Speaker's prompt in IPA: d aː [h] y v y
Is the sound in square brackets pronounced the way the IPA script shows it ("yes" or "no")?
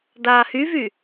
yes